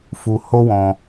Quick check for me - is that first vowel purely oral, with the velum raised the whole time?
yes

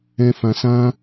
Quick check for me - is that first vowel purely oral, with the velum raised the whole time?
no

